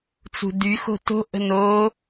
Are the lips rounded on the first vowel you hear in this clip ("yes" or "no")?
yes